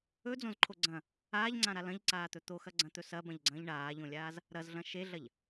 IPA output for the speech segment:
ɵ d͡z õ z ǃʰ o ɡ͡ǀ ɐ̃ | aː ʎ ŋ͡ǀ ã ɾ a l ɐ̃ ʎ ǀ aː t̪ ɵ t̪ o x ɐ ɡ͡ǀ ɐ̃ t̪ ɵ s ɐ b ɐ̃ ʎ ɡ͡ǀ ɐ̃ː ʎ ɳ aː ʎ õ lʲ aː z | ɾ ɐ z ɮ ɐ̃ ʃ e ɮ ɐ ʎ

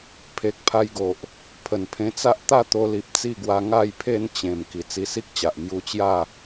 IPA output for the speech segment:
pʰ e˨ k̚ pʰ a˧ j ɡ o˨ ʔ | pʰ ə˨˩ n pʰ ẽ˧ t͡s a˦ ʔ t̪ a˥˧ t̪ o˧ l i˨ p̚ t͡s i˥˧ ɡ w a˧ ŋ a˥˧ j pʰ e˥˧ n t͡ɕ ẽ˨˩ m k i˨˩ t͡s i˧ s i˦ k̚ t͡ɕ a˨ ʔ m j u˧ t͡ɕ j a˥˧

